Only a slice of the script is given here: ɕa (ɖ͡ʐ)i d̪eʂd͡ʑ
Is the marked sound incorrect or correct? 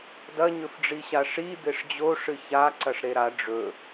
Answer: incorrect